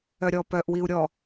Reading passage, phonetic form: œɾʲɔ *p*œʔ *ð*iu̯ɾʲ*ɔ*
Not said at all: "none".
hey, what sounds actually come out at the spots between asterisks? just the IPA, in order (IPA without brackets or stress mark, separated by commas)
p, w, ɔ